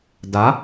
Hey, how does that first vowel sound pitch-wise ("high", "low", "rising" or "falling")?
rising